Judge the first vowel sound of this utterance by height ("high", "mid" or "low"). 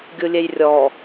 high